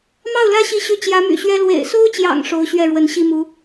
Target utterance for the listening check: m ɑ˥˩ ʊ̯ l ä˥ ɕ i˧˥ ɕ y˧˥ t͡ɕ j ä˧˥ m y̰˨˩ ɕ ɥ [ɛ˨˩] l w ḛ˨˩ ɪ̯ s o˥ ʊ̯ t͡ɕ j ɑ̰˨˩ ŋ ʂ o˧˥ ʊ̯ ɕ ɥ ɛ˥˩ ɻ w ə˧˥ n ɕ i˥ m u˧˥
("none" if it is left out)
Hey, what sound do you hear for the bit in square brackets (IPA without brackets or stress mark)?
ɛ˥